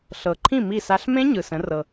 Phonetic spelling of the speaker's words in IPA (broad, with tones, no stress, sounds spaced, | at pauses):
ɬ ɤ˨ ǃʰ ĩ˥˨ m i˥˨ s a˦˥ ɬ m ẽ˦˥ ɲ ɯ˨ s ə̃˨˦ r ɤ˨